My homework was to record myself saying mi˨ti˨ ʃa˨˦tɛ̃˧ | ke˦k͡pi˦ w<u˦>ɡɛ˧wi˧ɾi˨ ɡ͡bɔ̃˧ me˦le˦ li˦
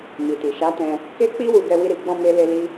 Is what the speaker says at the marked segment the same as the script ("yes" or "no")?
no